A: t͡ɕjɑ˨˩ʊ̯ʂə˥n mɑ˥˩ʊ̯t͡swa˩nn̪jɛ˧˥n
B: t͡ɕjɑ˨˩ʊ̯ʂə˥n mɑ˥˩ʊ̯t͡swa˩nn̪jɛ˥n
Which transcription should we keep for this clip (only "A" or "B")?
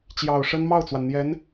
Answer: A